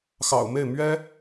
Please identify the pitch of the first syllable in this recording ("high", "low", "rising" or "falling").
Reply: low